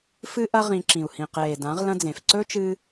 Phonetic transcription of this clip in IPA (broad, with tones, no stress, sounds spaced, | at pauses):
f ɨ˦ ʔ ɐ˦ ʁ ĩ˧ ǁ ĩ˨ u̯ h ĩ˨ q eː˨ d ã˨˦ ʁ l ɐ̃˦ d͡z ẽ˨ f ǀ ɵ˦ t͡ʃ ɨː˧